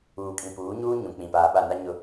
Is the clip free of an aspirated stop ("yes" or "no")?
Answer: yes